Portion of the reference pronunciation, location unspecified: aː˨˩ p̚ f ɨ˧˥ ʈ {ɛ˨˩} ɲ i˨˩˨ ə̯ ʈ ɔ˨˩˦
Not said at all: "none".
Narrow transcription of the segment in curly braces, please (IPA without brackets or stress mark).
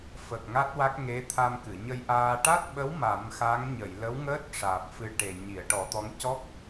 e˨˩